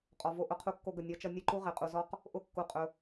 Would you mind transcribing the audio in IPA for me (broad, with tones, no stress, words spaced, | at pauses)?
qʼɔ˨vo˧ ʔʊ˧qʰu˧kːo˧ɡə˨ nʲɒ˧ t͡ʃʌ˧nʲə˦˨ǃu˦ ʁe˨qʼu˨zɔ˦q | ʔʊ˦kːu˧ qʼɵ˧